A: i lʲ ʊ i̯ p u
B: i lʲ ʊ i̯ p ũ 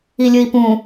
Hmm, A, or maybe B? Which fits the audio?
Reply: B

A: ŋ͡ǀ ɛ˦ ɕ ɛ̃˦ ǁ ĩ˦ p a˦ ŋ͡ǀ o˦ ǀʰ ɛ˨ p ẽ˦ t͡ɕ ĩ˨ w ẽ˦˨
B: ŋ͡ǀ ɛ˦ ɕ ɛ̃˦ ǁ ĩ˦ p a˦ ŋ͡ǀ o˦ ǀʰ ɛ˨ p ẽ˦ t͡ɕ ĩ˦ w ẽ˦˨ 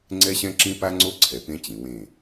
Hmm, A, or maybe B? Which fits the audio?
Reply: A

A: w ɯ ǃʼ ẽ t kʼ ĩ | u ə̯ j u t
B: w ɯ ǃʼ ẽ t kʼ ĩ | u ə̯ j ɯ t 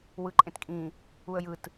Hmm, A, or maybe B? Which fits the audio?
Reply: B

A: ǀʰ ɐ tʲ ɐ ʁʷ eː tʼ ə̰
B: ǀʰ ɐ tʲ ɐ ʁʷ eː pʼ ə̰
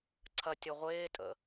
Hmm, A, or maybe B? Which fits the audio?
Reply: A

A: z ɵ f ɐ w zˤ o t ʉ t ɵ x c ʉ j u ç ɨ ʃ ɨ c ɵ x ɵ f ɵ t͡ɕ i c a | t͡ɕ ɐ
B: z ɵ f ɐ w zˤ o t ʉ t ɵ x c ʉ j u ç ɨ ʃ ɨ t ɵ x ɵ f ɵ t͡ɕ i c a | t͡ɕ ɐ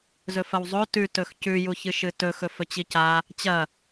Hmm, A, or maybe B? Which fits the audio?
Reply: B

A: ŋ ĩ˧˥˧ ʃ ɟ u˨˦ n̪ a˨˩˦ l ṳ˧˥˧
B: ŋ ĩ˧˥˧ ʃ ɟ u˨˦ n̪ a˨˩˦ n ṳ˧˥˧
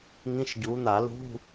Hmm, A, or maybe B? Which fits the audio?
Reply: A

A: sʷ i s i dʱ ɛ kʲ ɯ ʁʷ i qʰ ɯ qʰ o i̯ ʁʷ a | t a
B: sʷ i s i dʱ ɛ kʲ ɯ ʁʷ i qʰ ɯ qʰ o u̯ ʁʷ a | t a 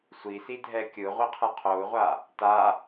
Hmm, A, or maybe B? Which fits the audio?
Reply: B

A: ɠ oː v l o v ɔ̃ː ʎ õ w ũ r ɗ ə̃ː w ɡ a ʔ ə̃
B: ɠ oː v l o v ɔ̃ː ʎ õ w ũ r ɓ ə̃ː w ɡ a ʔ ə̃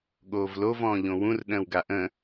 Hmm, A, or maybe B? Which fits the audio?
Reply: A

